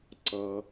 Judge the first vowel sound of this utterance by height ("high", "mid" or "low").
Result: mid